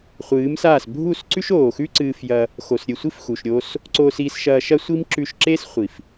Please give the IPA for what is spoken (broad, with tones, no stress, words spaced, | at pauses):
χʷɨː˨˦msaː˦˨s bʱu˦˨sǀʉ˦ʃoː˨xʉ˦ ǀɨː˧fjɐ˧ | xo˨sɾʲɨ˨sʷi˦f xu˨ʃɾʲoː˦s | ǀo˧si˧sʃɐː˧ ʃɐ˦sʷi˦mǁʉ˧ʃǁe˦s χʷi˨f